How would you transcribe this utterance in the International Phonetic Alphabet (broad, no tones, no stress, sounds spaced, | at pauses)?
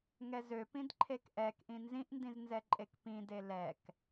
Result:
ŋ ɛ z ø p ĩ d ǃʰ e k ʔ ɛ k ʔ ĩ n z ĩ ʔ n d ĩ z n z ɛ ǃʼ e k p ĩ d e l ɛ k